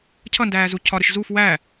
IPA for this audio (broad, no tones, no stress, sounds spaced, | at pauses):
cʰ ʌ n d æː z u cʰ ɒ ɾ ɪ ʃ z u f w æ